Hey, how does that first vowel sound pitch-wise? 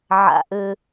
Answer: low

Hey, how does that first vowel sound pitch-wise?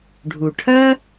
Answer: low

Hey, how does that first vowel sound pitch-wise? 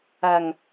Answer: low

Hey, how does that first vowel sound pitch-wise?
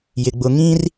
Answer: low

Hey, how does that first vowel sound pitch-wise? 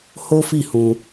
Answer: high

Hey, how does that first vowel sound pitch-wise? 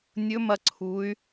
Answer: rising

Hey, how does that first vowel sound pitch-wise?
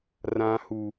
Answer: low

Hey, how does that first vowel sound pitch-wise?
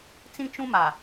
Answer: high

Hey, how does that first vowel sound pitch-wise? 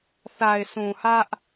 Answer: low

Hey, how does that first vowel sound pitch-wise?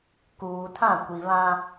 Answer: low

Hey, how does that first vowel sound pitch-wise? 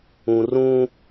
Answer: low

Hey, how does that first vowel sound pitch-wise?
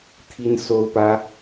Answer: high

